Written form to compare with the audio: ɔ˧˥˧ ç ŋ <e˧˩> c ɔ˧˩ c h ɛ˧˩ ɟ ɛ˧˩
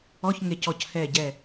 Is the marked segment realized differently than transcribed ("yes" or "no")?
no